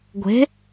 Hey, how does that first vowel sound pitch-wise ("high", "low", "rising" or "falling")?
rising